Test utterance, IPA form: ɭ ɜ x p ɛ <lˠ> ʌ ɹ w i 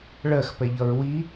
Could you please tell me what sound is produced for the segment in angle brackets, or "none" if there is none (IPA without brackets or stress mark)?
ʎ